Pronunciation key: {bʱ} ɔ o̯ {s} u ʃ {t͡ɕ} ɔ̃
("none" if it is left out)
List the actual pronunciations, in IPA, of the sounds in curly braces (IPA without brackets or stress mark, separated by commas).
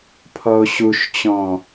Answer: pʰ, ɕ, t͡ɕ